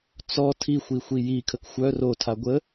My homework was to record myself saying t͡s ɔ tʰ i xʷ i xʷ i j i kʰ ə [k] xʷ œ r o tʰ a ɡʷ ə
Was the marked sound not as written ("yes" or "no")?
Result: no